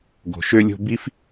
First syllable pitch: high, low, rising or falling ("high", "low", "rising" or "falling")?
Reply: low